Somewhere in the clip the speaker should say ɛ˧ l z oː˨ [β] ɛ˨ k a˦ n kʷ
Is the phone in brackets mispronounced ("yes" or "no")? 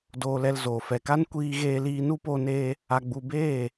yes